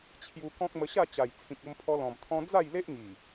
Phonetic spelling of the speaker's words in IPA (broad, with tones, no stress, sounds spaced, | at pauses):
t͡ɕʰ j u˧ k ɔ̃˦ k̚ m ə˧ ɕ a˥˧ t͡ɕ a˨˩ j t͡sʰ ĩ˨ k̚ o˧ m pʰ ɔ˧ l ɔ̃˨˩ m t̪ʰ ɔ̃˧ d͡z a˥˧ j l e˦ ʔ ŋ i˨˩